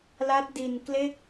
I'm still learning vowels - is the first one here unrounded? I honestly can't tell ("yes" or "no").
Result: yes